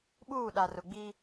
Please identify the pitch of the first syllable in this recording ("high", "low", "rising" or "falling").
falling